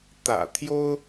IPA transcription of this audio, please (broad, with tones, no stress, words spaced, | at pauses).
t̪ä̰˨˩t̪ʰjo˥ʊ̯